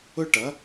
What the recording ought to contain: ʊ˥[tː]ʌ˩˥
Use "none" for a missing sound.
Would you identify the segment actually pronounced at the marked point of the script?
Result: ʈ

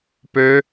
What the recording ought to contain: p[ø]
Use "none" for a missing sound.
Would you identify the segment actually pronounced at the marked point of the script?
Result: ø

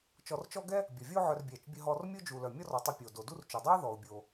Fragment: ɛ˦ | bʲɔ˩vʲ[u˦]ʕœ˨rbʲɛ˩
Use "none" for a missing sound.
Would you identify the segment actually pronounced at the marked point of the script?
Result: o˦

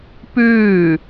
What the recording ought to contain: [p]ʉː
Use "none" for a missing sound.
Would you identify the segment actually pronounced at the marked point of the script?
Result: p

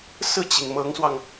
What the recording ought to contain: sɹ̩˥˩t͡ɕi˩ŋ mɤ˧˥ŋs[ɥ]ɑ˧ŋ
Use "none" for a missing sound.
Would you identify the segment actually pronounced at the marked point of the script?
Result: w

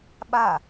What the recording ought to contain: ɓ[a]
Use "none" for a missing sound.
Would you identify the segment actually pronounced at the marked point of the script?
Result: a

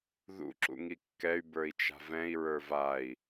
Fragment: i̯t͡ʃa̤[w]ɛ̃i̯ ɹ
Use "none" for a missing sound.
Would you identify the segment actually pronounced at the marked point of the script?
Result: v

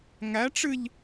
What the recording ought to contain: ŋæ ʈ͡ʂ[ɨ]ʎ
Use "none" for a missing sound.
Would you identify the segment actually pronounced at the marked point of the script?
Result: ɨ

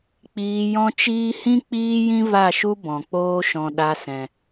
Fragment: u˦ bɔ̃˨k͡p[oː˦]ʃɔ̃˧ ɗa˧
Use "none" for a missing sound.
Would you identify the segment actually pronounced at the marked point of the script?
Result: oː˦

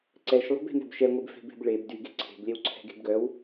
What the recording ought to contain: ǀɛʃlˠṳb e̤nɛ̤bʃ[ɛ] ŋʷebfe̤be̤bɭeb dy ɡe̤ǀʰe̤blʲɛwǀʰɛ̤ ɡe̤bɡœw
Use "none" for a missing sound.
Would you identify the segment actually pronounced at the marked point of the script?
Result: ɛ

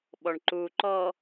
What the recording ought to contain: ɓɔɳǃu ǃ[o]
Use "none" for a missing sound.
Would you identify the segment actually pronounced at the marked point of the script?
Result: ɔ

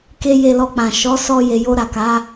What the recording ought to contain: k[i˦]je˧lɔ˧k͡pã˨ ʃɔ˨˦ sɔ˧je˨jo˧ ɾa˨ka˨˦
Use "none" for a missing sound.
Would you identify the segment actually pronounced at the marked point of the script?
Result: e˦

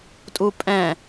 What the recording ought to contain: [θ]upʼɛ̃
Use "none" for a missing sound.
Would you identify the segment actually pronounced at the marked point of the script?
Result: tʼ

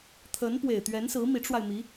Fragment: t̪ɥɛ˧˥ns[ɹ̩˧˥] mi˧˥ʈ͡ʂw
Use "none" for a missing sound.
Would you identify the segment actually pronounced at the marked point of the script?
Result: ɹ̩˧˥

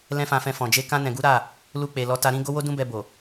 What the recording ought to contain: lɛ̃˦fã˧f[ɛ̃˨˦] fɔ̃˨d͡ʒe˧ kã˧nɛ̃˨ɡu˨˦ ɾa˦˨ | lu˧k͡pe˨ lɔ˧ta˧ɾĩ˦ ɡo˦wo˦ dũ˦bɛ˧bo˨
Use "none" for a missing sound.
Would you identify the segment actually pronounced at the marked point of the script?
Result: ɛ̃˧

